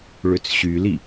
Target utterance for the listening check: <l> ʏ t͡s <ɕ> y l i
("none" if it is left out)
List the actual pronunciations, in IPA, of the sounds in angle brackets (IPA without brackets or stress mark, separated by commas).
ɭ, ɕ